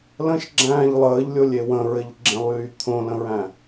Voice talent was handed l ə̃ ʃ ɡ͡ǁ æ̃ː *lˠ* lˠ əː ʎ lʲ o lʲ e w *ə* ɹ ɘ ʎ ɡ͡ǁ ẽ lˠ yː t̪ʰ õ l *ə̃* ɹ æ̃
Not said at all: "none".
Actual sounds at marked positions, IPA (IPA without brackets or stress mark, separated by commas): ʎ, ə̃, ə̃